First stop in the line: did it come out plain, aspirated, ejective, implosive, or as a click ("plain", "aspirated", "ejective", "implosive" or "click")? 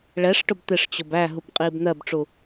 plain